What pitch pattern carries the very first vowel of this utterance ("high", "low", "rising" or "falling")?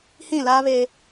falling